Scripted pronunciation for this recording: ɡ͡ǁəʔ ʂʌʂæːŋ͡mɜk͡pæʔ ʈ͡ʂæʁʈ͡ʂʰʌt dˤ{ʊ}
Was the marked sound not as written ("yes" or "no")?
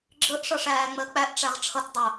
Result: no